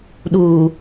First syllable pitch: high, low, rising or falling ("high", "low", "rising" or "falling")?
low